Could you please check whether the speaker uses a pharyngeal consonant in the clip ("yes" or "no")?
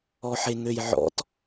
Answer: yes